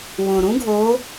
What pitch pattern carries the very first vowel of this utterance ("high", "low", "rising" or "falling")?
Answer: low